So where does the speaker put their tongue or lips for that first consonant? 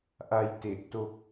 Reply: throat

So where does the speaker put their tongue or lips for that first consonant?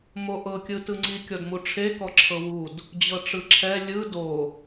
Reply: lips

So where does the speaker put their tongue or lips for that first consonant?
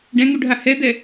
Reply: retroflex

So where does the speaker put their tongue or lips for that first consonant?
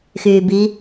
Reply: velum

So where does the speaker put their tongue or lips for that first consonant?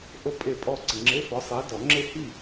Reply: throat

